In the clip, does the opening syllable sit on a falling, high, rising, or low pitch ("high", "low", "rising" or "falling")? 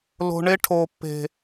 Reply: low